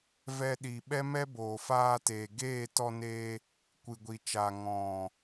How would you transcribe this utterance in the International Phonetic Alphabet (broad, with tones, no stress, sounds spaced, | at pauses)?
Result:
v ɛ˧ ɗ i˨ ɓ ɛ˦ m ɛ˦ b oː˨ f aː˧ t eː˨ ɡ eː˦˨ t ɔ˧ n eː˧ | kʷ ɨ˨ ɡʷ i˨ t͡ʃ aː˨ ŋ ɔ̃˨